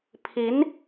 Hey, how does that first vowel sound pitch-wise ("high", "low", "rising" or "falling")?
rising